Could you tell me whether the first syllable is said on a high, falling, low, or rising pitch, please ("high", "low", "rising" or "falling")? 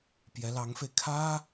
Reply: rising